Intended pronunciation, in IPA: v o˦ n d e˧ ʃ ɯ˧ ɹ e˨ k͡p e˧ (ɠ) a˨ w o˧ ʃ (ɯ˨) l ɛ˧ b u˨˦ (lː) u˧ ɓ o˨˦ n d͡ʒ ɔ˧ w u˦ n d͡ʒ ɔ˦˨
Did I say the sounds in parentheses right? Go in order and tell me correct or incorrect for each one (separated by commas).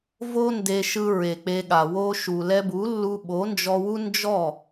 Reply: correct, incorrect, correct